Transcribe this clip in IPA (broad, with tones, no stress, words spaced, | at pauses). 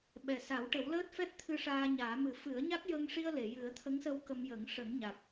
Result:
ɓɛ˨˩sa˨˩˦w ʈə˨˩˦wləː˦˥t̚fɛ˦˥t̚t̪ʰɨ˧ ʂaː˧ɲaː˨˩˦mɨ˨˩˦ fɨ˨˩˦ə̯ɲa˦˥k̚jə˧ŋʂi˧ə̯ le˨˩˨jɨ˨˩˦ə̯t̪ʰə˧˥ŋsə˧w kə˧mjə˨˩˦ŋ ʂə˨˩˦ŋɲa˨˩k̚